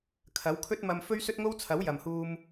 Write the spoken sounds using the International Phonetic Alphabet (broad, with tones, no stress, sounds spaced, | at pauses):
kʰ ɐ˨˥ w kʰ ɵ˥ t̚ m ɐ˧ m f ɵ˥ ɥ s ɵ˥ t̚ ŋ o˥ w t͡sʰ ɐ˨˥ w j ɐ˨ m h uː˧ m